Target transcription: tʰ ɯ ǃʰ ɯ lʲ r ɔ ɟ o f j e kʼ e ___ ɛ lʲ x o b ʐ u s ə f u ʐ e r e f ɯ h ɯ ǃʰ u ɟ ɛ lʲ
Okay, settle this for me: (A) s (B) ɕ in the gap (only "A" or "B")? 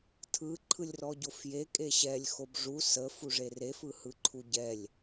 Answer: B